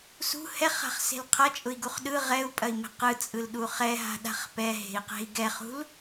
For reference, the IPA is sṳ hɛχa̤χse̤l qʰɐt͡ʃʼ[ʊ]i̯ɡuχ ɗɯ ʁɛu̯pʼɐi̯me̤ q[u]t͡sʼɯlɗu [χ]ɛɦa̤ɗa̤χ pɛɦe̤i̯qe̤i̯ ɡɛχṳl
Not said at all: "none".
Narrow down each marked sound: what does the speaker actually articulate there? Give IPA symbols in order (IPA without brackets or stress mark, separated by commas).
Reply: ʊ, ɯ, χ